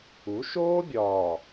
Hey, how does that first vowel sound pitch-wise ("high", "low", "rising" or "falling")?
rising